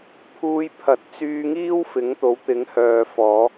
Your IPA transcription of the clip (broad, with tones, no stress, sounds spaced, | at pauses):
pʰ uː˧ j pʰ ɐ˨ t̚ t͡s yː˧ ŋ iː˥ w f ɪ˨˥ ŋ t̪ o˨˥ w t̪ ɪ˨˥ ŋ h œː˨ f ɔː˨˧